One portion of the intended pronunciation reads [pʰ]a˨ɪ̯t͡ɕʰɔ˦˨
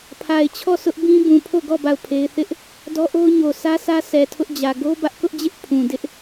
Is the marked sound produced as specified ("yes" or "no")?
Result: yes